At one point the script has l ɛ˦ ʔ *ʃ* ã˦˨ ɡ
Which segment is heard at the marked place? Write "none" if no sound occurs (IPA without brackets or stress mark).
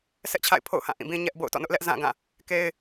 z